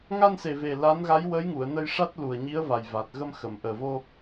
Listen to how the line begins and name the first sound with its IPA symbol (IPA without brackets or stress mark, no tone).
ŋ